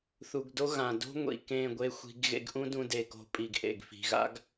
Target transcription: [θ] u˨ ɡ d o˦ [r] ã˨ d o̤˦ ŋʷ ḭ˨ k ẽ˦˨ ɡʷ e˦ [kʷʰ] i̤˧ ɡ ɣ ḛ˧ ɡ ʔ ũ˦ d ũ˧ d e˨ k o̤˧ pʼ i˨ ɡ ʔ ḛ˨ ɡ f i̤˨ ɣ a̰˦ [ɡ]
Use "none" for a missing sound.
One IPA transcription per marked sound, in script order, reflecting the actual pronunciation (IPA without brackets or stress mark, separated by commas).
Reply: θ, ɣ, xʷ, ɡ